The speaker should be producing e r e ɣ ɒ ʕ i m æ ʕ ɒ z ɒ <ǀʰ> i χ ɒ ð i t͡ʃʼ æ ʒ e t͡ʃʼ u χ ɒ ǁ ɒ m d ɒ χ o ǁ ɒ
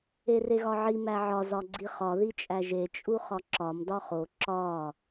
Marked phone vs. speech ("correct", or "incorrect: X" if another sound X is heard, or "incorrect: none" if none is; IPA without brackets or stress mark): incorrect: ɡ͡ǀ